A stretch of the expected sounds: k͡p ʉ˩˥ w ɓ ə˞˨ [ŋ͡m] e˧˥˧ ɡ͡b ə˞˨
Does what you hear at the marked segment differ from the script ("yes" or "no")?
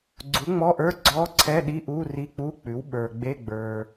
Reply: yes